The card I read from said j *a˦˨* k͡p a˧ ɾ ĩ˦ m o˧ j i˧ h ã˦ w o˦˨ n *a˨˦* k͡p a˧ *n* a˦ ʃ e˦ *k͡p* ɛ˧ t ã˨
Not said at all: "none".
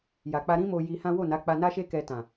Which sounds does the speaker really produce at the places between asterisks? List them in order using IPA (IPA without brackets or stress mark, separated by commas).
a˨, a˨˦, n, k